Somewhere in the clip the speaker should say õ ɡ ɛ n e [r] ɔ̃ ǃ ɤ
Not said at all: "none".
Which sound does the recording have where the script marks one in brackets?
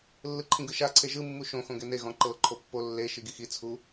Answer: ɣ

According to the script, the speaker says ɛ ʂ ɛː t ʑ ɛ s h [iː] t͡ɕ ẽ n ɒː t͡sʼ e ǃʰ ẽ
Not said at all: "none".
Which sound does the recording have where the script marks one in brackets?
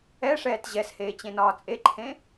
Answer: eː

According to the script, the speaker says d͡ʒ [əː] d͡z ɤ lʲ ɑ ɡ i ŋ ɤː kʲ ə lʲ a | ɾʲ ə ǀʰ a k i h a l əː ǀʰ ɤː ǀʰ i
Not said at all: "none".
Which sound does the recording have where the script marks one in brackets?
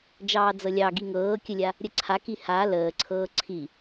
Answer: ɑː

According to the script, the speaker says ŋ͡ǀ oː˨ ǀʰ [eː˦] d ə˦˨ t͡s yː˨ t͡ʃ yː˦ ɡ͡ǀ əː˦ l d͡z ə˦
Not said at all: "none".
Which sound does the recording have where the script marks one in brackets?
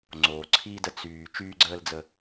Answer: iː˦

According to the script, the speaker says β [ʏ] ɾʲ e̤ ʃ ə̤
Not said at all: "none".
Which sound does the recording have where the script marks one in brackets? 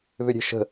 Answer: ʏ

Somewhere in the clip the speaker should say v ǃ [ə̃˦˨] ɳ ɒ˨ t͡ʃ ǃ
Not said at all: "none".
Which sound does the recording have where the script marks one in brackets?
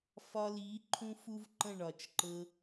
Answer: ə̃˦˨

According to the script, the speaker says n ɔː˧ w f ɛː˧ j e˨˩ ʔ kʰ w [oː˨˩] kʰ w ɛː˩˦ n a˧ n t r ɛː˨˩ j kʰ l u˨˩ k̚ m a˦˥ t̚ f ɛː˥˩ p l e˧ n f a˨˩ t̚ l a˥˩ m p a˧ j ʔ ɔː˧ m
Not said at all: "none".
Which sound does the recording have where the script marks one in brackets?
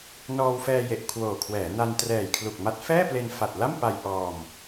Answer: oː˨˩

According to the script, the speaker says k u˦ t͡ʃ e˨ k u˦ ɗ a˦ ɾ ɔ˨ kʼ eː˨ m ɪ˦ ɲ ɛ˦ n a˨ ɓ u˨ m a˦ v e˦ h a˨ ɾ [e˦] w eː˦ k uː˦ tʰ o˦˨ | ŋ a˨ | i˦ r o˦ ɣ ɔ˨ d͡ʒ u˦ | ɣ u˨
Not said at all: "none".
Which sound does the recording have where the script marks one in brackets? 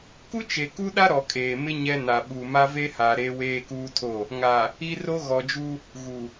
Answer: e˦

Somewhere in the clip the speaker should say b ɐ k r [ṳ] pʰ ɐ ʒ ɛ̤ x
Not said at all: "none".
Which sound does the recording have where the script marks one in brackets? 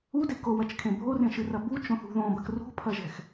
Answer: ṳ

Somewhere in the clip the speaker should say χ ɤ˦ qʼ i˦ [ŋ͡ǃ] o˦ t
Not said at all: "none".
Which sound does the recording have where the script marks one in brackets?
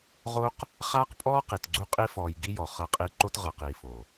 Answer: ǃ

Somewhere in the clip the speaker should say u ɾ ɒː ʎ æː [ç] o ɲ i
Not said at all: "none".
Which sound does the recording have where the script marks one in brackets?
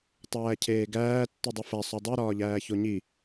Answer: ç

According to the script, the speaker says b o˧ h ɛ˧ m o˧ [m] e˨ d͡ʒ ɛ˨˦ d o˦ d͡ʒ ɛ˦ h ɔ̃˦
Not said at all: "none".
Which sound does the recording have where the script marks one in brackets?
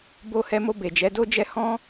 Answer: b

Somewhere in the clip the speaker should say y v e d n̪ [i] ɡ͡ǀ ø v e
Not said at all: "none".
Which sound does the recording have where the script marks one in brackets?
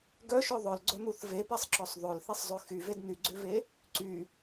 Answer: y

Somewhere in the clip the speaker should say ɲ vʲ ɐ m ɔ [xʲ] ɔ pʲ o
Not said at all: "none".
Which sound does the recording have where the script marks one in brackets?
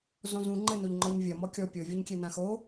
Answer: kʲ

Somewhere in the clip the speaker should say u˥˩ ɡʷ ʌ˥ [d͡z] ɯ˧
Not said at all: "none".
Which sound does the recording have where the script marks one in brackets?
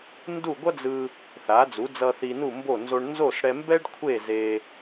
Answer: d͡z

